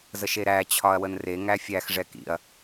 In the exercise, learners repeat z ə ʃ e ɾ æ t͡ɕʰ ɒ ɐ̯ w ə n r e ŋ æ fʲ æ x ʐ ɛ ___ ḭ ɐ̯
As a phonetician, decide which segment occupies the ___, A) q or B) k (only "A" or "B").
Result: B